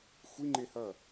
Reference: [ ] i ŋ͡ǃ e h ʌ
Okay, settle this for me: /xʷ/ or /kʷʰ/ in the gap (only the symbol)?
xʷ